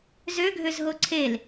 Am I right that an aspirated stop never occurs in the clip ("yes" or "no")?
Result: no